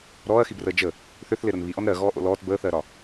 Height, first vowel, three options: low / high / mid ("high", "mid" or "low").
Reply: mid